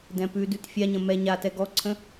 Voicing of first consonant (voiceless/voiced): voiced